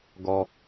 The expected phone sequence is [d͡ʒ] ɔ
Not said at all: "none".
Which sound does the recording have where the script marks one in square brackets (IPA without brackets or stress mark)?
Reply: ɡ